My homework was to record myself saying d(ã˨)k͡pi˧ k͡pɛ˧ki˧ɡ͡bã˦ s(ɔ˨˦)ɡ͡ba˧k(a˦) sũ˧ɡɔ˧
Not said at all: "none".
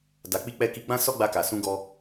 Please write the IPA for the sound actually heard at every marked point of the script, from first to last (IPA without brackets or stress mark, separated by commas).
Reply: a˨, ɔ˦, a˨